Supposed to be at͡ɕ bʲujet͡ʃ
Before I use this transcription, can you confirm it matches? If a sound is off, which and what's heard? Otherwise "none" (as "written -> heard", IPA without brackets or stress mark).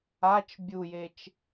t͡ɕ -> t͡ʃ